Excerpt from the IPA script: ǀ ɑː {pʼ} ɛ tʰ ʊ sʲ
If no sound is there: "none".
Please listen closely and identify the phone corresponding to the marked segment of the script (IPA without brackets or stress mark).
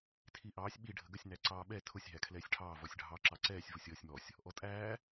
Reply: ɓ